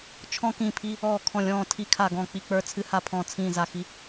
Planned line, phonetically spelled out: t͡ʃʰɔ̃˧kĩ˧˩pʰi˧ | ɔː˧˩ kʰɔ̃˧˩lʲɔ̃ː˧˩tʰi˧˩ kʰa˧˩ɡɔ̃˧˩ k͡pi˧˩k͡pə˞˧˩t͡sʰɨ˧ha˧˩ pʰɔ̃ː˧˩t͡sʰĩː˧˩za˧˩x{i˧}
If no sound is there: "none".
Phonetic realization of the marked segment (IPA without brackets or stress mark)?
i˧